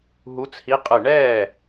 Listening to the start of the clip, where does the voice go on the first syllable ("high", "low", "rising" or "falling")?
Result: rising